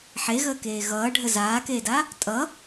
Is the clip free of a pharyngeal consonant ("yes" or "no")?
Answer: no